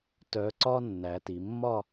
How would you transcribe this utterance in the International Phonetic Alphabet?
tœ˩˧ǀɒ˧ nːæ˩˧ti˩˧mːɒ˥˧

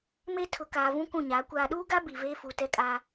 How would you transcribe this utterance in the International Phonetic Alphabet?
me˦tʰʊ˨ kaː˨vũ˦ kũ˦˨ɲaː˨˦ kʷaː˨ɗuː˦ɡa˦ bi˨veː˦fu˨ tɛ˦kʼa˦

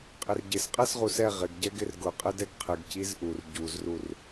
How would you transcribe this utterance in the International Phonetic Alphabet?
qʼɪrɟɪs qʼɛsʁusɛ ʁɪɡɟɛ ɡɪrɡʊ qʼɪdɛɡqʰɪɡ cizʔur ɟuzrur

